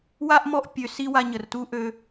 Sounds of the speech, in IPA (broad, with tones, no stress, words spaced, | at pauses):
wa˦ʔmɔ˦˨ʔ pʲø˧si˦ wa˧ɲə˨rtu˦ʔø˧